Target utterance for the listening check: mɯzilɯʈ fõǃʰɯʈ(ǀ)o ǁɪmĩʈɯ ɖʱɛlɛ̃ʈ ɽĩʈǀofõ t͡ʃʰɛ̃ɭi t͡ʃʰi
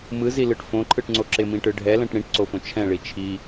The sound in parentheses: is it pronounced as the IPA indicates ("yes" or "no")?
no